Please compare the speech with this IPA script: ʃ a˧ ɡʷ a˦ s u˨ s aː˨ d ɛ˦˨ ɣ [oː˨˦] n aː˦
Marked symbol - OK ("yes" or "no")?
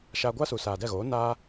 yes